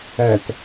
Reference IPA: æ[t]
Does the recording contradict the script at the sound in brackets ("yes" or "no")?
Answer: no